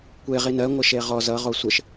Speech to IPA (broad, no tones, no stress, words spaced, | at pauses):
kʷe ʁinɜ ŋʷəʃeʁɔz ʌ ʁosʷəʃ